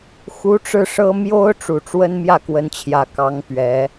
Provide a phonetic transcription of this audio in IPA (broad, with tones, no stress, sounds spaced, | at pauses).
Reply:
x u˧˥ ʈ͡ʂ ɻ̩˥˩ ʂ ɤ˥ m j o˥ ʊ̯ ʈ͡ʂ u˨˩ ʈ͡ʂ w ə˥ n m j ä˥˩ k w ə˧˥ n t͡ɕʰ j ä˨˩ k ɑ˧˥ ŋ p ɥ ɛ˧˥